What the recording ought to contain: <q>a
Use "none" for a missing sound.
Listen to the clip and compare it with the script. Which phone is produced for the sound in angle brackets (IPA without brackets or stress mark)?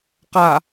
q